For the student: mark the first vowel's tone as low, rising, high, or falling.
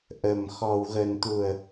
low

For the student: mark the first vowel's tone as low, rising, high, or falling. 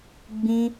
high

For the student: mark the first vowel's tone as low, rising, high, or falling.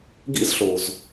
high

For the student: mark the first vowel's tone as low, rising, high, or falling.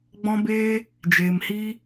high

